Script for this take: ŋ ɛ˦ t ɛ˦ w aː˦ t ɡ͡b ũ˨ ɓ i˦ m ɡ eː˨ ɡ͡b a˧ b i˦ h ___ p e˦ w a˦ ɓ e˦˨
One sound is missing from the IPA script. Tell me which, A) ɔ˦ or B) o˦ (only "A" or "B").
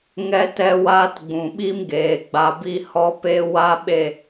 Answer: A